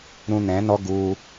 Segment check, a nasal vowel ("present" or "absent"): present